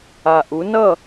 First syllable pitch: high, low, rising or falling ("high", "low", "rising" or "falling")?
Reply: low